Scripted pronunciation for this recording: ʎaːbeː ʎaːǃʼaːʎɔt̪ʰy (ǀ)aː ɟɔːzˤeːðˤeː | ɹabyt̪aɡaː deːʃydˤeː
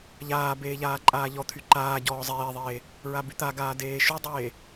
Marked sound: incorrect: ǃ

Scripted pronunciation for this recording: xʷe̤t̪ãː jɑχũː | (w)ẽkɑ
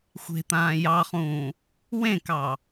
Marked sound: correct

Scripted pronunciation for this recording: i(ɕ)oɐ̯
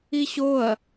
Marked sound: correct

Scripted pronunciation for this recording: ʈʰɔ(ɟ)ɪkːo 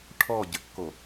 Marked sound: correct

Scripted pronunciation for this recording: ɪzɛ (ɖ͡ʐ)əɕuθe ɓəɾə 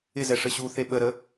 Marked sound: incorrect: ʂ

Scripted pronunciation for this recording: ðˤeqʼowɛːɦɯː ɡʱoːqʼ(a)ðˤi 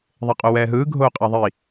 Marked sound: correct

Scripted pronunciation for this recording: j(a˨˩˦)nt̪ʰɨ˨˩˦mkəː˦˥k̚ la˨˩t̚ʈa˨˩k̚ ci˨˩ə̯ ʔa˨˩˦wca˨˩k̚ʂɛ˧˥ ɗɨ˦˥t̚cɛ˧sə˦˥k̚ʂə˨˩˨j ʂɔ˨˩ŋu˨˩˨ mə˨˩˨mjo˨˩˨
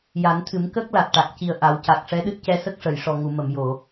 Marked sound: correct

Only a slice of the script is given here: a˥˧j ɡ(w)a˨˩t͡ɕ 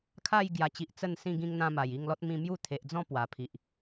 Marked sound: incorrect: j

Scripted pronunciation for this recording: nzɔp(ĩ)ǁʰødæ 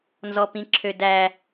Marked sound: correct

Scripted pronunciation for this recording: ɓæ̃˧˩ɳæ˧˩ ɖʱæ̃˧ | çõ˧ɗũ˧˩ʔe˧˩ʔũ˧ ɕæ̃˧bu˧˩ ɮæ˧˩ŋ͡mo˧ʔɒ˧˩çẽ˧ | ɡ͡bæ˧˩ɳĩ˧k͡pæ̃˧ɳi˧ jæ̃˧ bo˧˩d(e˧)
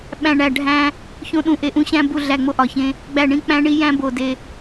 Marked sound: correct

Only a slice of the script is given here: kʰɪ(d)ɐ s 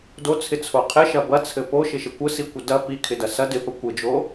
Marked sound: correct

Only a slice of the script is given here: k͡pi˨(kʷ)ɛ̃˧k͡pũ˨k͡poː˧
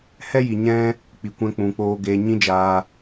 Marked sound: correct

